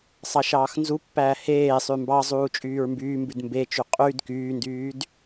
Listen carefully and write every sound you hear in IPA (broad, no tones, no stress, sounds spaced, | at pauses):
sˤ ɑ ʃ ɑː x n z u pː æː h eː sˤ ʉ m b ɑ zˤ uː t͡ʃʼ yː ɹ m b yː m b ʉ d m b e t͡ʃ y qʼ y d k yː n d yː d